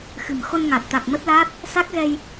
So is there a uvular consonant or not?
no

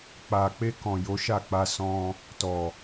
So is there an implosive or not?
no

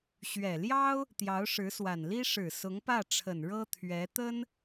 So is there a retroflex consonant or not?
yes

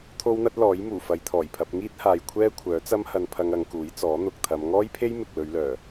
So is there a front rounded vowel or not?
yes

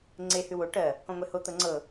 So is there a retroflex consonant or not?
yes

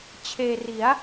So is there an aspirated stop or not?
yes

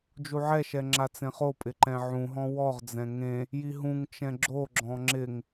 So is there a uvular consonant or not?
yes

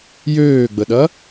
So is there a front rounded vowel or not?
yes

